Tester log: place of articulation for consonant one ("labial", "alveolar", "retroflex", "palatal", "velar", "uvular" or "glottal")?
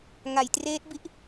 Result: velar